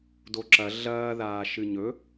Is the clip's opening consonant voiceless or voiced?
voiced